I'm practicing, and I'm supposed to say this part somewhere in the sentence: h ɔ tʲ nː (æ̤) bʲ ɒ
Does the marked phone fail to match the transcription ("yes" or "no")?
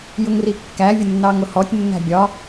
no